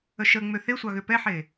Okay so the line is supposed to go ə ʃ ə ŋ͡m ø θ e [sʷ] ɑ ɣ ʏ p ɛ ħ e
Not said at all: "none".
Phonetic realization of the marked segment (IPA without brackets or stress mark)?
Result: sʷ